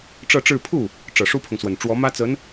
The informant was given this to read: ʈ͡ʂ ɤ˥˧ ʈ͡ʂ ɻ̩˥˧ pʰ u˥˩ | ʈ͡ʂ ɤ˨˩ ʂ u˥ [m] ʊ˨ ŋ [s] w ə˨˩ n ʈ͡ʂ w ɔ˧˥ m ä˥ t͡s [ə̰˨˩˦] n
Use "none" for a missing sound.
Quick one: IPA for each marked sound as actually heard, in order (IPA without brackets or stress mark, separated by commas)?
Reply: pʰ, s, ə˧˥